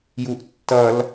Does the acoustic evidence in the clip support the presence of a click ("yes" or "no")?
no